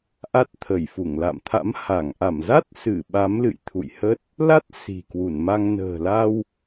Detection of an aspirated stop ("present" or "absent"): present